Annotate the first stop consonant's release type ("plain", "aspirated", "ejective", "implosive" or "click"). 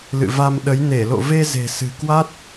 implosive